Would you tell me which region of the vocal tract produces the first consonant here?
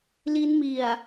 tongue tip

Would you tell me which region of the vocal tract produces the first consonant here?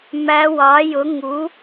lips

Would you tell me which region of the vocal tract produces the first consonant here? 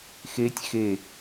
velum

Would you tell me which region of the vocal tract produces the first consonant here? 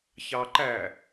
palate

